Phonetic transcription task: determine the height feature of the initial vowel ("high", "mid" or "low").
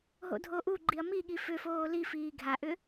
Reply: mid